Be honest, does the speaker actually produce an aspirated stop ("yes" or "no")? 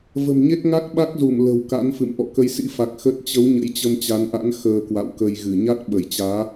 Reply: no